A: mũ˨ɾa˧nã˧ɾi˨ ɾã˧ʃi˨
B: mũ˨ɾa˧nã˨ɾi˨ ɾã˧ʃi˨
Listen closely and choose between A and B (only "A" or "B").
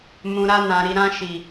B